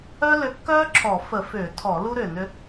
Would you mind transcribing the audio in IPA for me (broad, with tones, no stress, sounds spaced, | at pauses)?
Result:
œ˥ l ʏ˨˥ kː œː˥ ǁʰ ɔ˧˩˧ f ə˧˩˧ f ʏː˧˩˧ tʰ ɔ˧˩˧ l u˥ ɾ ʏː˧˩˧ n ʏ˨˥